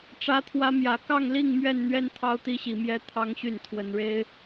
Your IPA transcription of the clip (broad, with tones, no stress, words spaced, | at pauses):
ʈ͡ʂä˦t̪ʰwä˦mjä˨˦ kɑ˥˨ŋli˥˨ŋ mɥɛ˥˨nn̪ɥɛ˦n t̪ʰɑ˦ʊ̯t̪i˦ɕi˨˦mjɛ˦ t̪ʰɑ˦ŋɕy˥˨n t̪ʰwə˨˦nɻe˦ɪ̯